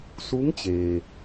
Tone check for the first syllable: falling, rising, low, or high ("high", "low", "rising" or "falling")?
rising